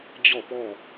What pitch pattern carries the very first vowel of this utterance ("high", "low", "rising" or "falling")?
falling